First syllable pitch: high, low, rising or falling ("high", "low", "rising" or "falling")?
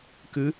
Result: rising